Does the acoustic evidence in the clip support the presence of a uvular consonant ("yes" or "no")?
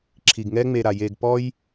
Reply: no